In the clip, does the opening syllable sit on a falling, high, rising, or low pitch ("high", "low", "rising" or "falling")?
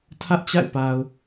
high